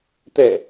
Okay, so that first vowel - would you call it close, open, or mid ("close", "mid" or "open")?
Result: mid